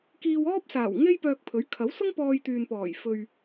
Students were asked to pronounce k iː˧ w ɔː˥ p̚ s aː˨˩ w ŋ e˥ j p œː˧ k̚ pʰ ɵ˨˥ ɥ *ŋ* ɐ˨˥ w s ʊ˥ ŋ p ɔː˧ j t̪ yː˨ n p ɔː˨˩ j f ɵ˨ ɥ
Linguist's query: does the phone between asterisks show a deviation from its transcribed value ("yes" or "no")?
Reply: yes